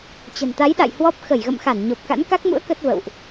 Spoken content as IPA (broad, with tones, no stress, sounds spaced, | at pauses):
t͡ɕ ə̤˨˩ n t̪ a˨˦ j ɗ a̰˧˨ j h w ɔ˦˥ p̚ x ə˧˩ j ɣ ə̰˧˨ m x a˧˩ n ɲ o˨˩ p̚ k a̰˧˥ n k a˦˥ k̚ m ṵ˧˥ ə̯ k ə˦˥ t̚ v ə̰˧˨ w ʔ